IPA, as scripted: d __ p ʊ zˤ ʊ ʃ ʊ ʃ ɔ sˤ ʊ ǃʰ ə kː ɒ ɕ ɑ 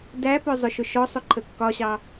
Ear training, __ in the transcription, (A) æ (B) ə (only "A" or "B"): A